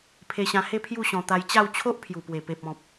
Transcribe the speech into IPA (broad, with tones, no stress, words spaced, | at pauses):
pʰe˧ɕã˧he˥˧ pʰju˥˧ɕɔ̃˧ t̪a˧jt͡ɕa˥˧w t͡ɕʰo˦ʔpʰju˨˩pwe˨˩pe˨p̚ ɔ̃˨p̚